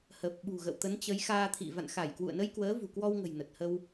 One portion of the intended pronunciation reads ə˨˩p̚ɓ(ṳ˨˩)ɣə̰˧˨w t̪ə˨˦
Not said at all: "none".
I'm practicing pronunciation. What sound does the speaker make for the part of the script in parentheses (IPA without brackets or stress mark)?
ṳ˨˩